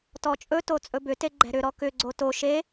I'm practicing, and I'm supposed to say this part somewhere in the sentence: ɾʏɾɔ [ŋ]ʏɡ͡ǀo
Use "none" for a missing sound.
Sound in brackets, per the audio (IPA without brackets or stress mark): k